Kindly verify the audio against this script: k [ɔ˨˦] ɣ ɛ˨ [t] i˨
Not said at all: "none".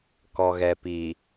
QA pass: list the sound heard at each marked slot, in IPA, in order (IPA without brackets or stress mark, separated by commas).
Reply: ɔ˨, p